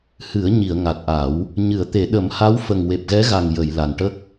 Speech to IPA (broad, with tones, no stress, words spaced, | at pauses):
hɨ˨˩˦ə̯ ɲi˨˩˨ə̯ ŋa˨˩t̚ʔa˨˩˦w | ɲɨ˨˩˨ə̯t̪e˨˩˦ ɗə˨˩˦mha˧˥w fə˨˩ŋ we˨˩p̚ɣɛ˧˥ɣa˨˩ŋ jə˨˩˨j la˨˩nʈə˦˥k̚